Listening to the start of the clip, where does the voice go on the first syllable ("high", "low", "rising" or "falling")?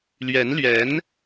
rising